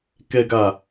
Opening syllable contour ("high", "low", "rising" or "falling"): low